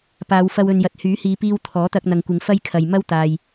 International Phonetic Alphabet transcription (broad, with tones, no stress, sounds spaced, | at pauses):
p aː˨˧ w f ɐ˧ w ɵ˨ n j ɐ˨ t̚ h yː˨˥ h iː˨˧ p iː˧ w t̪ʰ ɔː˨˥ t̪ ɐ˧ k̚ n̪ ɐ˨ ŋ kʷ ɪ˨˧ ŋ f ɐ˥ j kʰ ɐ˨ j m ɐ˥ w t̪ aː˨ j